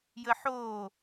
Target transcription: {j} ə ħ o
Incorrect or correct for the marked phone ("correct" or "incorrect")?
correct